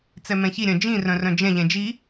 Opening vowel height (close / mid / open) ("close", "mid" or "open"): mid